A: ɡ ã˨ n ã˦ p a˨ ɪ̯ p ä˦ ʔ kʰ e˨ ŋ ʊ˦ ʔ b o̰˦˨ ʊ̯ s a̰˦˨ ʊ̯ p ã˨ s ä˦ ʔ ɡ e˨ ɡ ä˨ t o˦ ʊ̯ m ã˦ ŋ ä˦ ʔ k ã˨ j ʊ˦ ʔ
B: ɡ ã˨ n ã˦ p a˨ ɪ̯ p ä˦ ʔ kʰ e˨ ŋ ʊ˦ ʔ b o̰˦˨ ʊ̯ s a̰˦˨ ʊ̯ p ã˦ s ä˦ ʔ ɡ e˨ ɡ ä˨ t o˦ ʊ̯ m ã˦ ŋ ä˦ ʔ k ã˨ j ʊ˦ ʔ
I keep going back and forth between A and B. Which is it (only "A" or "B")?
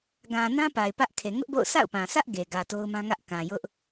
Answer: A